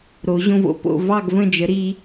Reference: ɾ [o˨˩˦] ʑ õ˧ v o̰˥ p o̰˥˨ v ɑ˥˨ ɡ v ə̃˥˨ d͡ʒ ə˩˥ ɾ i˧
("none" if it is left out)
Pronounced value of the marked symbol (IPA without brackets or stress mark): o˨˩˦